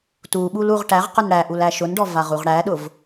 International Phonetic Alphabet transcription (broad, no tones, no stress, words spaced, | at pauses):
tuɓul uʁʈæʁqʊn ɽæʔul æʃʊnɖɔ vaʁuʁɽæɗʊv